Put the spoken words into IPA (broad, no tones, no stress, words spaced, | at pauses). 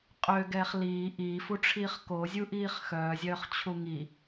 qʼøɡɛːχ liː ʔiːfuʈ͡ʂʰiːχ kozʲuʔiːχ xœːzʲœːχt͡ɕʰu ŋi